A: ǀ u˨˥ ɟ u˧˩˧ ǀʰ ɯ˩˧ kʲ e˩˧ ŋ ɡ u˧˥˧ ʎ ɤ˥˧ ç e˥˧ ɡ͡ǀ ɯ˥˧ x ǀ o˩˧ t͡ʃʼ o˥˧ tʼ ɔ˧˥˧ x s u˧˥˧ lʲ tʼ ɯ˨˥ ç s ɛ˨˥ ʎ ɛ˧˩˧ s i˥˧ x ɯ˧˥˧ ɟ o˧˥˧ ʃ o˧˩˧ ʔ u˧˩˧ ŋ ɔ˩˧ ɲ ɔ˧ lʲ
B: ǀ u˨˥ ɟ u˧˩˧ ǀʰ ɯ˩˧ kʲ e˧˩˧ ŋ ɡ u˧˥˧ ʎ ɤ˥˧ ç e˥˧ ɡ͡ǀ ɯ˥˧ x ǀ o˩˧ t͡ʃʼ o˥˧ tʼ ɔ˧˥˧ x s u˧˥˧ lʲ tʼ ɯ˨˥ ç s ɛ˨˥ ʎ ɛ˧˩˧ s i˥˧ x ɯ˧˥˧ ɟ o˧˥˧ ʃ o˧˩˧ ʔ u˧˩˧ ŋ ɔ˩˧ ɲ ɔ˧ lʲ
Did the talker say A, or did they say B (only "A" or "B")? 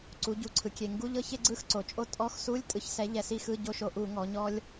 B